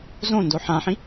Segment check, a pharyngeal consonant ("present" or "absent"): present